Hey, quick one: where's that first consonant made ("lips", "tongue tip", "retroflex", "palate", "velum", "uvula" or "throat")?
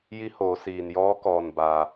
palate